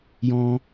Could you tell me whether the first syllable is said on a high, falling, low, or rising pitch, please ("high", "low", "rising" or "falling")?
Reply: high